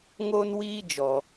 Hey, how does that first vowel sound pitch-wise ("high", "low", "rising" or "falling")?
high